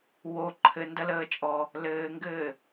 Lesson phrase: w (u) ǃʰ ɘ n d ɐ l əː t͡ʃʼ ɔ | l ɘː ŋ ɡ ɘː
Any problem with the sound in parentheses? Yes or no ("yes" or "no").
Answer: yes